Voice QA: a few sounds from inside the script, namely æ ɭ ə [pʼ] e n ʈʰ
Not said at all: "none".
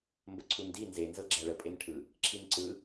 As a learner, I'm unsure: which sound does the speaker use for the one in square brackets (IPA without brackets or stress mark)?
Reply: pʼ